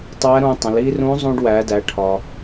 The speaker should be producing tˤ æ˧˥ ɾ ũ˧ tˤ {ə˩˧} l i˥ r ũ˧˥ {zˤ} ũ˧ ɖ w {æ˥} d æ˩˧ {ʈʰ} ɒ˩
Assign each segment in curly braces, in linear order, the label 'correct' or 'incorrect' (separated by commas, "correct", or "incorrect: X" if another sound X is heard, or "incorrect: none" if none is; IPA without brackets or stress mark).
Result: incorrect: ə̃˩˧, correct, incorrect: æ˩˧, correct